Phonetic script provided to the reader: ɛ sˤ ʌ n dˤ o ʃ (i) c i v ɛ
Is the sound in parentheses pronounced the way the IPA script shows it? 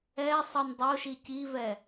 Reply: yes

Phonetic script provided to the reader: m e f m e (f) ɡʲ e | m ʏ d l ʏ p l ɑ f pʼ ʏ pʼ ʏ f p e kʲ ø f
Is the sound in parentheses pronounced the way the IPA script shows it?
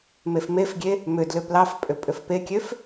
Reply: yes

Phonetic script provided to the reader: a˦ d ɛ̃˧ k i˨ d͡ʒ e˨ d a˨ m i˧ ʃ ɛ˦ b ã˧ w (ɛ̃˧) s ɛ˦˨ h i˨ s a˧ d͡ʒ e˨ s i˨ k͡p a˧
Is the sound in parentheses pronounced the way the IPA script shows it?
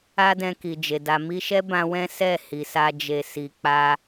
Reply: no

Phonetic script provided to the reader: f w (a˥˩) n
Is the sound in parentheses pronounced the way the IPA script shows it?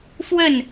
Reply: no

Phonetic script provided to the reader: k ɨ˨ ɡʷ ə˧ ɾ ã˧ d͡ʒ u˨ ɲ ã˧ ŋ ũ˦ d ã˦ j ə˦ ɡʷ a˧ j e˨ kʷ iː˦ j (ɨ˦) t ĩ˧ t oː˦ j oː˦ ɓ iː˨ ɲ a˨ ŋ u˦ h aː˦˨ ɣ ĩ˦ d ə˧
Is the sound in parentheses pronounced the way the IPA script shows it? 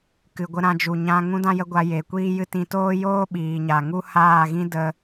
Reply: yes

